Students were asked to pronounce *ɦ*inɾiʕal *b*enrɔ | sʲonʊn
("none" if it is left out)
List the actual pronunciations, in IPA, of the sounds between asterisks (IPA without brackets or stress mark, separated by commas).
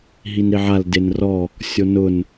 ɦ, d